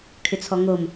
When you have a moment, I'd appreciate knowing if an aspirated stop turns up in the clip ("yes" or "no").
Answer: yes